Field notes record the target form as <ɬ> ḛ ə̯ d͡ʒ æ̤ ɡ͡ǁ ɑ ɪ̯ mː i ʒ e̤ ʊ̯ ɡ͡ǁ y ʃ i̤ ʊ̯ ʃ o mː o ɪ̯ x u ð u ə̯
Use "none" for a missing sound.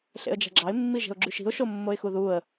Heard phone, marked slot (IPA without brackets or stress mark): ɬ